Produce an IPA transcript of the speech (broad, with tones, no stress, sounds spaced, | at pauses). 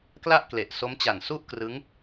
k l a˥˩ ʔ k l e˨˩ ʔ s o˦˥ m t͡ɕ a˨˩ n s u˥˩ ʔ k r ɯ˦˥ ŋ